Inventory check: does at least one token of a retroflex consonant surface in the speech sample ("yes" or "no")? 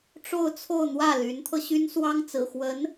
yes